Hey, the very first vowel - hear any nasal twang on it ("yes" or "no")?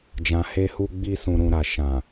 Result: yes